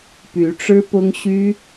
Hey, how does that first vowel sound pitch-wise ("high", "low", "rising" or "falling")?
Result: rising